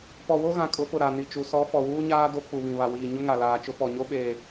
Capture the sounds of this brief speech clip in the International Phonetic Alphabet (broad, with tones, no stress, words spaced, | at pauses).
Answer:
pɔ˨wo˦ɣã˨ kʼʊ˨˦fʊ˨ ɾa˨ ni˨t͡ʃu˨˦ sɔ˨˦ fɔ˨wuː˦ɲaː˦ do˦ k͡pu˨βĩ˨ βa˨wiː˨ ɲʊ˦ŋa˨laː˨t͡ʃʊ˦ pɔ˨ɲo˦ ɓeː˨